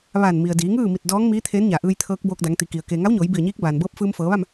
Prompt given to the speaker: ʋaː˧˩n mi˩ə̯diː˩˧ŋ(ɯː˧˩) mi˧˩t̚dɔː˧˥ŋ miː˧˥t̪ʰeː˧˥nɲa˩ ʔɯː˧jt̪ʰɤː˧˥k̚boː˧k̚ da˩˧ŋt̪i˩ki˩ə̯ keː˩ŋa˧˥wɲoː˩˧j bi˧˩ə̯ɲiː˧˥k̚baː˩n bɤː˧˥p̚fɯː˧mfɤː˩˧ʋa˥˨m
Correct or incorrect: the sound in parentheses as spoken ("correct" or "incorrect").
incorrect